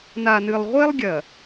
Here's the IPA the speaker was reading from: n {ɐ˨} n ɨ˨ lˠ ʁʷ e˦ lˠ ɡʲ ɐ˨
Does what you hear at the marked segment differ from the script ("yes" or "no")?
yes